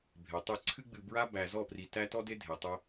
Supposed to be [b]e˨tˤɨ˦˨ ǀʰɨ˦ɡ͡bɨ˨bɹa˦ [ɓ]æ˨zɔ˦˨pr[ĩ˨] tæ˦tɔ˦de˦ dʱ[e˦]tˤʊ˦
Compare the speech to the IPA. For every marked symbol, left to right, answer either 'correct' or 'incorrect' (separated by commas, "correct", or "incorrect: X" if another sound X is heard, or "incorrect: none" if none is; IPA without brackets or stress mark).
incorrect: bʱ, incorrect: b, incorrect: i˨, incorrect: e˨